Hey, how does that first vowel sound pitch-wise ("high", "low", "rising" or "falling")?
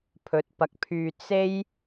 rising